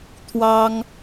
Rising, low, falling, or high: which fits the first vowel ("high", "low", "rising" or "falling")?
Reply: high